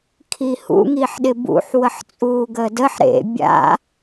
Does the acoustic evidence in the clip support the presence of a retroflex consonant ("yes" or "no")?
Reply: no